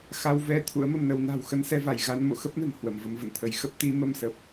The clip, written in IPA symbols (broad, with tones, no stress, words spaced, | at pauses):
xa˧w vɛ˧ t̪ʰṵ˧˥ə̯mə˧mnə˨˦w na̤˨˩wxə˧nsɛ˧va˧˩j ɣa˧n mo̰˧˨xə˦˥p̚nə̤˨˩n hwə˧˩mvə˧mvə̰˧˨nt̪ʰə˨˦j xə˦˥p̚t̪i˨˦ mə˧msə˨˩p̚